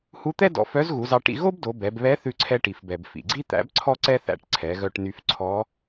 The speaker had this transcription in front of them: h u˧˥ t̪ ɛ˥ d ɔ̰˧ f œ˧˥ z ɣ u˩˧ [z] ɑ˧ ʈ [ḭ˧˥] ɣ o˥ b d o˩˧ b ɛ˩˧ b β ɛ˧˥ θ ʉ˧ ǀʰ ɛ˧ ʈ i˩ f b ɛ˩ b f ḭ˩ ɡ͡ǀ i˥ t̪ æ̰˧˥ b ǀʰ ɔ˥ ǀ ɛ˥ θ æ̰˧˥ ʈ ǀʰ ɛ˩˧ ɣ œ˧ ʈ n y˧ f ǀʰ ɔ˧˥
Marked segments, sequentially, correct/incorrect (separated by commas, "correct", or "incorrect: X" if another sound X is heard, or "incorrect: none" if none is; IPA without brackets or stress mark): correct, incorrect: ḭ˧